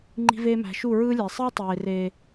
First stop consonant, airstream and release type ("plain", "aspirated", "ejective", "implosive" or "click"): click